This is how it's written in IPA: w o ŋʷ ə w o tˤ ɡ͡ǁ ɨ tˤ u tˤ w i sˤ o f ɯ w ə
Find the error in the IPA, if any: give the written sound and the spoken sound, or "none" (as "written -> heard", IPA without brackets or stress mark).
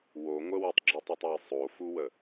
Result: ɯ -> u